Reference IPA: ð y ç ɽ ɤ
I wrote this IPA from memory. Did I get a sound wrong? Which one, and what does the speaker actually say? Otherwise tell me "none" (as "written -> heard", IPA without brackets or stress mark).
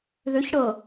y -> ʏ